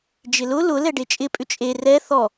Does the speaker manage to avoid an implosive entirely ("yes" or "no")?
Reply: yes